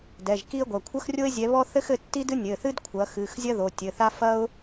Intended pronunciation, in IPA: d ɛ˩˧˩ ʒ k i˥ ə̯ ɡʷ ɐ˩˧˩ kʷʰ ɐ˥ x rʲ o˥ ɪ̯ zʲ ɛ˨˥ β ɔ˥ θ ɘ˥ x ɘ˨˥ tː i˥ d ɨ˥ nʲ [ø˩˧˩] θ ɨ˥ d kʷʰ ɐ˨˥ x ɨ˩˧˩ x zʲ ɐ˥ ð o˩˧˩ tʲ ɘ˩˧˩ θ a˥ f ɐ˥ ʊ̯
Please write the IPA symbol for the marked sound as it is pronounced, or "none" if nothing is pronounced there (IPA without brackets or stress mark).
ɘ˩˧˩